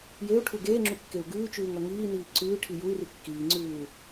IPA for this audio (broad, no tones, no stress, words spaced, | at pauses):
jeu̯ʈʰu ɡeːŋ͡ǁukːeu̯ ɡʉːt͡ʃʉːŋʌ ŋiːniː ǀʉːʈʰi jui̯ri kːiːŋ͡ǀʉːu̯